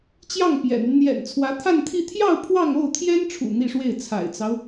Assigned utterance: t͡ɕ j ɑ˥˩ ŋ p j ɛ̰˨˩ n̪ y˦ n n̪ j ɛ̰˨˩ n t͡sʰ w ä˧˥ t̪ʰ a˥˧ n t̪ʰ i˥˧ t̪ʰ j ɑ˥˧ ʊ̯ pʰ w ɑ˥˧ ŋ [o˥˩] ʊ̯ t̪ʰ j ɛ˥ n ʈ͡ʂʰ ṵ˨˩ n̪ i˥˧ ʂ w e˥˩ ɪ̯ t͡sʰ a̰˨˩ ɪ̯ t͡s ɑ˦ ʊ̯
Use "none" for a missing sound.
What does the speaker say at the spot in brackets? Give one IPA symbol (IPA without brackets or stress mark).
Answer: o˥˩